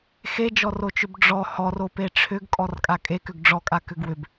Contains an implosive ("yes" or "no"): no